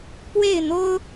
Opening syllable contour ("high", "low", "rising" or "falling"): falling